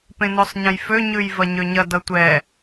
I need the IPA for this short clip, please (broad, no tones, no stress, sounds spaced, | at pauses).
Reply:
p ẽ n o sˤ ɲ ɐ̃ j f ø ɲ ʉ j v ɐ ɲ ø ɲ ɐ d ʌ tʷ ɛ